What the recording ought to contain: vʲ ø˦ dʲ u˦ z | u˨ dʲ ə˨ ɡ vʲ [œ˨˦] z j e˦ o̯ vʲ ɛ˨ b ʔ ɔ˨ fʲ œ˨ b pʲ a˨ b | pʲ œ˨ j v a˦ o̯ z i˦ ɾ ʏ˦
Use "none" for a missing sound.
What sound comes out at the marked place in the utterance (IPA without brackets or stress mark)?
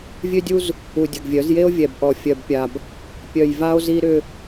œ˨˦